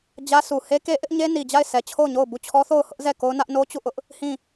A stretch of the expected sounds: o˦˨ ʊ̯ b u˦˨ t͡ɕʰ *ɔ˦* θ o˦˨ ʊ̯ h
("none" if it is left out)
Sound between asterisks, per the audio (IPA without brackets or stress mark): ɔ˦